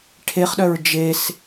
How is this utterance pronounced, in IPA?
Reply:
ʈʰ e χ ɗ œ ɹ d͡ʒ e s

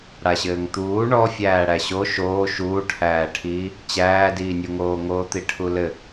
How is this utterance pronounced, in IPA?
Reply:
ɽ a ɕ ɘː ŋ t̪ uː ɳ ɔ fʲ æː ɽ æ ɕ o ʃ oː ʃ uː ʈʰ æː ʈʰ iː | t͡ɕ æː d iː nʲ u ŋ oː ŋ oː t̪ i ʈʰ u l ɘ

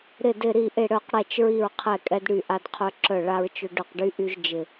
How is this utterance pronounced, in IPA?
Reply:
ɾ ɪ˧˩ d ɪ˧˩ ɾ i˧˩ ʔ ɪ˧˩ ɽ œ˧˩ q ɽ ɛ˧˩ t͡ʃ ɹ i˧˩ ɹ qʰ ɛ˧˩ kʼ ɛ˧ d ɽ y˧˩ ʔ a˧ d qʰ œ˧ ǁ œ˧˩ ɭ a˧ ɹ t͡ʃ ʊ˧ ɖ ʊ˧˩ q ɖ y˧ ʔ y˧ ʒ d͡ʒ ɪ˧˩

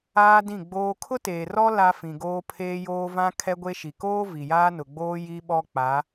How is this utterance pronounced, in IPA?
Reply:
aː˦ d ĩ˦˨ ɡ͡b oː˦ kʰ ʊ˦ t eː˨ r ɔ˦ l a˦ f ĩ˨ ɡ oː˦ pʰ eː˦ j oː˦ v ã˦ kʰ ɛ˦ ɡʷ e˦ ʃ i˨ k oː˦ v i˨ j aː˦ n ʊ˨ ɡ͡b oː˦ j i˦ ɓ ɔ˦ k͡p a˨˦

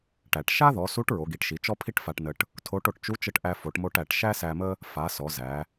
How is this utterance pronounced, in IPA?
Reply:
ʈ æ˩ ʈ ʃ a˥ ð ɔ˩˧ s u˧˥ ʈ ɹ o˩˧ ɡ i˩˧ ʈ ʃ i˩˧ t͡ʃ ɔ˥ pʰ i˥ ʈ f a˧ ʈ n ə˧ ʈ | tʰ o˧˥ ʈ o˧ ʈ t͡ʃ u˧˥ t͡ʃ ə˧ ʈ ʔ æ˧ f o˩˧ ʈ m o˧ ʈ æ˩ ʈ ʃ æ˥ s æ˧ m ə˥ | f a˩˧ s ɔ˩˧ z æ˩˧

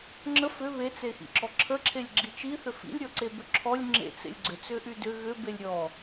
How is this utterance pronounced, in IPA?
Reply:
ŋ͡ǁ ə f ʏ β e t͡s e x ḭ ǁ ɔ ǁʰ ə ǁʰ e lʲ ɡ͡ǁ i t͡ʃ i θ ʏ f ḭ lʲ ɾʲ ɔ ǀ e b ʏ ǁʰ ɔ lʲ ŋ͡ǁ ḛ t͡s ḛ lʲ ɡ͡ǀ ʏ t͡s ʏ ʔ y d ʏ ɣ ʏ b e lʲ ɾʲ ɔ

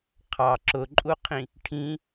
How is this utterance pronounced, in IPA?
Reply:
qʰ ɑ ǁ ʊ ǃʼ u qʰ ĩ | ʈʰ ĩ

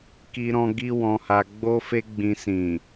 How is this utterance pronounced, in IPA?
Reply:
k i˧ ɾ ɔ̃˧ ɡ i˦ w ɔ̃˧ h a˧ ɡ͡b o˦ f e˦ ɡ͡b ĩ˧ s ĩ˨

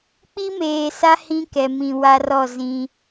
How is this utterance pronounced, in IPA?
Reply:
k͡p i˦ m eː˨ s a˦ h ĩ˦ k ɛ˨ m ĩ˨ w a˦ r ɔ˦˨ z ĩ˦

